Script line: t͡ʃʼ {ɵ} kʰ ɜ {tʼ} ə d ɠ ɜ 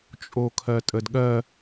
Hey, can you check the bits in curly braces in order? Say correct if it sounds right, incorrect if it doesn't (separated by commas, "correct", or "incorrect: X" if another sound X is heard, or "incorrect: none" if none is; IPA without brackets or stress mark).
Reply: incorrect: o, correct